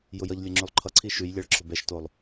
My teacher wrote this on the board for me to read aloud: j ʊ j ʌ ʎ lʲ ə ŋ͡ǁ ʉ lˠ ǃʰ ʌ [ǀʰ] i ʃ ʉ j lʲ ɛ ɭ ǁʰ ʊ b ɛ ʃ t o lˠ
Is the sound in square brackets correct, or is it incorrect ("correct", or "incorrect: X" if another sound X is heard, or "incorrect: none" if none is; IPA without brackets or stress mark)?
correct